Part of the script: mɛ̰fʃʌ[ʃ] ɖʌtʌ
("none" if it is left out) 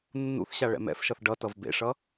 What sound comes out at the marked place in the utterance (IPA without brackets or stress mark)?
θ